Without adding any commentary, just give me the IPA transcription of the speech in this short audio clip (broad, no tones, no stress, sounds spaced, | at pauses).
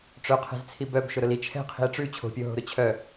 ʈ͡ʂ œ qʰ ɛ̤ z t͡sʰ i b œ b ʃ ʊ ɾ ʊ l i t͡ʃʰ ɛ̤ qʰ i̤ e̯ ʈ͡ʂ ʉ t͡ɕʰ o̤ pʲ o ɦ o̤ ɾ ʊ t͡ɕʰ œ